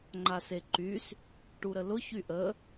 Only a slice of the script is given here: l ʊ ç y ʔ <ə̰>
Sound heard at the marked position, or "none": ə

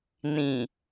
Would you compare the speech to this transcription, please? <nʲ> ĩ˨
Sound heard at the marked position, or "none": n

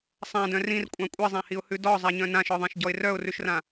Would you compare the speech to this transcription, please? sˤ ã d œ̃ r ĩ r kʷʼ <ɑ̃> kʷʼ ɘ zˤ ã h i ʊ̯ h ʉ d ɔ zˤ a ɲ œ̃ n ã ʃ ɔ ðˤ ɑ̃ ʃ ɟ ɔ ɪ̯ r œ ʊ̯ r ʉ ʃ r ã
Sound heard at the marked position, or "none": ɑ̃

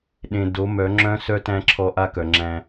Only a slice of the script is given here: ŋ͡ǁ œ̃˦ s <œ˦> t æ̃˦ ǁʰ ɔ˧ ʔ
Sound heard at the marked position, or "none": œ˦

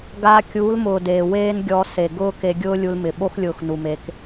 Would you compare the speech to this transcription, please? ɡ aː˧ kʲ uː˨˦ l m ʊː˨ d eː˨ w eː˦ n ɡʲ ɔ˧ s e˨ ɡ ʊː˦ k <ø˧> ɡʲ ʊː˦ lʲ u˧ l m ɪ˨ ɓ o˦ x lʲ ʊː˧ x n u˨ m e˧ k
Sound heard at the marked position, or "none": e˧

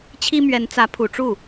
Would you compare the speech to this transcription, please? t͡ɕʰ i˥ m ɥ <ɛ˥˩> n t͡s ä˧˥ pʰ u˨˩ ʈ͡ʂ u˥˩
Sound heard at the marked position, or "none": ɛ˧˥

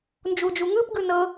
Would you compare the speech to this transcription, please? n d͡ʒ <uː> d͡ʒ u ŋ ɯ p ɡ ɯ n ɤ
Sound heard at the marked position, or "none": u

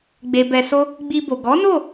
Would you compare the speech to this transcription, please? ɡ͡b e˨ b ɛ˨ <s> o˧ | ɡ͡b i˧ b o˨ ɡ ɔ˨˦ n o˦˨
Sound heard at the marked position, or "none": s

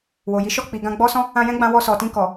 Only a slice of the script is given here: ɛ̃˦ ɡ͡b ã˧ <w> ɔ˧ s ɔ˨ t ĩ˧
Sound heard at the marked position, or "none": w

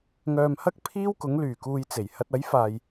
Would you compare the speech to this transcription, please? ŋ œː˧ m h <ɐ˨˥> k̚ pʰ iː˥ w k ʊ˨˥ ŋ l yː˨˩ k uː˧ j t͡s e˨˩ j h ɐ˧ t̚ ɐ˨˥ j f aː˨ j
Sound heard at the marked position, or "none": ɐ˥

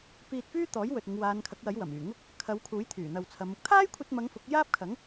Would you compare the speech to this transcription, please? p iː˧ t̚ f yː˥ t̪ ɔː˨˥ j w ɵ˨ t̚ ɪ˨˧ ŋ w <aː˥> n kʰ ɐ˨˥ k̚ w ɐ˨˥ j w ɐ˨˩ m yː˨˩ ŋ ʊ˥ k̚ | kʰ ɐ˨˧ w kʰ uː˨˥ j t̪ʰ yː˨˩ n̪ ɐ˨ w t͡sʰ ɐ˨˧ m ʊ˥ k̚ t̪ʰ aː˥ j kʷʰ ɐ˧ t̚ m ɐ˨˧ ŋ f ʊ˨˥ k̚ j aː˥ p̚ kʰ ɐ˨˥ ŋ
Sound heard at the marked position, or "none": aː˨˧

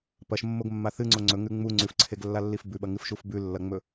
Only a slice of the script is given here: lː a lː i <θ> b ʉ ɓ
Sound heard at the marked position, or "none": f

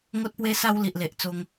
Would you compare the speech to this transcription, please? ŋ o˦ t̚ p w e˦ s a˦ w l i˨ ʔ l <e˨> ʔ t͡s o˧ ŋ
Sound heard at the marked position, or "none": e˨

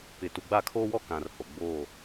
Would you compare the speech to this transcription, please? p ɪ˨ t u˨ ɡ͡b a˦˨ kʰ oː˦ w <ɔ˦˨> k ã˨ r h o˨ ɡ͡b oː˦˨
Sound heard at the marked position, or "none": ɔ˦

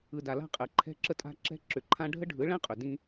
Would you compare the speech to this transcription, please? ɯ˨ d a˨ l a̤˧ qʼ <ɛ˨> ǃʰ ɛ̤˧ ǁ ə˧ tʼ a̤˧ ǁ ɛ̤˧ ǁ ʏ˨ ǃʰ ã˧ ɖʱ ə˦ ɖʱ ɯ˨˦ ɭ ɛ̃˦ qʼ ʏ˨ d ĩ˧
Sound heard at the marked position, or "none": ɛ˨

